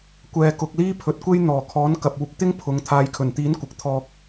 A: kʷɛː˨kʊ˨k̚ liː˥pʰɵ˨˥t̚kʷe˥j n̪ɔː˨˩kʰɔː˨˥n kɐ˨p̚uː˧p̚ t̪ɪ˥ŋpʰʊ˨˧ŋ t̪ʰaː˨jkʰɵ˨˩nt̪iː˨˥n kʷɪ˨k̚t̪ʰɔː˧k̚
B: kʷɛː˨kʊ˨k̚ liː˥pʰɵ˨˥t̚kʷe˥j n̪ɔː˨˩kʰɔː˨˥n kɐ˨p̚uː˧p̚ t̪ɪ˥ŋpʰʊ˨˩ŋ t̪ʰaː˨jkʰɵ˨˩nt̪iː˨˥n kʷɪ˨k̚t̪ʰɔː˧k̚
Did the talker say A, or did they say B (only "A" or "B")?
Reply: A